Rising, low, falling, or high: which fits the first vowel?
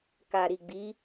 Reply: low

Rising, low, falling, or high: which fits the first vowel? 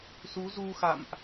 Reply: rising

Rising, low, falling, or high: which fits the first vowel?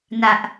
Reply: high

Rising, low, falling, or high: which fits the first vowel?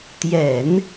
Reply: low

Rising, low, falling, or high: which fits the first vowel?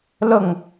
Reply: falling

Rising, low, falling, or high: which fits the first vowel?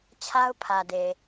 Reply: high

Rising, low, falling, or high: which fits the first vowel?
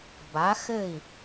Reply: rising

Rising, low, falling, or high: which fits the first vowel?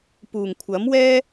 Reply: low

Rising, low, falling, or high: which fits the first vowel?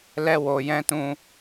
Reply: high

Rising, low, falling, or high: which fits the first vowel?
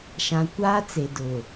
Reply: low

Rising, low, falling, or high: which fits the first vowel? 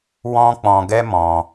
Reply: high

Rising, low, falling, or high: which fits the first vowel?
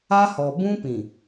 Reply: high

